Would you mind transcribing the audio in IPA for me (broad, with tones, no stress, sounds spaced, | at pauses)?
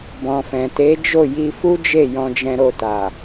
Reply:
b ɔ̃˨ f ɛ̃˨ t e˨˦ d͡ʒ o˦˨ j i˧ f u˦ d͡ʒ e˦˨ j ɔ̃˧ d͡ʒ ɛ̃˧ ɾ o˧ t a˨